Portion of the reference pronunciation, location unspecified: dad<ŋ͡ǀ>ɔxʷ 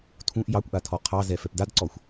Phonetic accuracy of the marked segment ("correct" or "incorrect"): incorrect